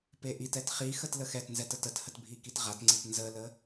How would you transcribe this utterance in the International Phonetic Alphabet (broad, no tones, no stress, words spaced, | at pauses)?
peʔitɛt χi xətləxɛtnzɛt ətəthət bʱikitʁatŋ͡ǀit nzələ